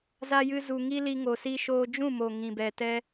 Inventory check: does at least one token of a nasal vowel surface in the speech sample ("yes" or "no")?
yes